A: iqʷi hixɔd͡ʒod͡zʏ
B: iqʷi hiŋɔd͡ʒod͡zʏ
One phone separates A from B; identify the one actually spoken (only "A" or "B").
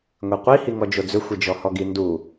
B